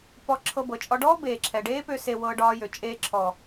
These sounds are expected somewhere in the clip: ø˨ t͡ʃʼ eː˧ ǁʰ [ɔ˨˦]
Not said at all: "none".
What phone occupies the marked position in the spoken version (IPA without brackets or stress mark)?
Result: ɔ˨